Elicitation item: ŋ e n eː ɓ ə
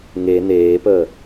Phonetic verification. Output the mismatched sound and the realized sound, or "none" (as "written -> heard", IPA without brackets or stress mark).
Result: ɓ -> p